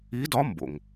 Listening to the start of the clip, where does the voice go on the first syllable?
rising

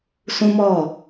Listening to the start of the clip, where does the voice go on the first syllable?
high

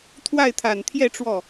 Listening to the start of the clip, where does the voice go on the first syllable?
falling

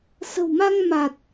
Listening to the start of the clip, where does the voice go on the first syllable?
low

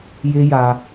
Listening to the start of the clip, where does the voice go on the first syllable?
high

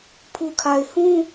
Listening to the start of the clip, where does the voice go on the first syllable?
low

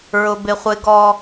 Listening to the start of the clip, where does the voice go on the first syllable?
high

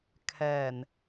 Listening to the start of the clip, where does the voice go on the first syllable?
low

